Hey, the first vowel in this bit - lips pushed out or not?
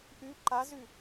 yes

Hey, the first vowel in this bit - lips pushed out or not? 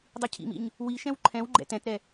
no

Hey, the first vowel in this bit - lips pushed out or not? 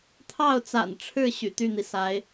no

